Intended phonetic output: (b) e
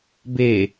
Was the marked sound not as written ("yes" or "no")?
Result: no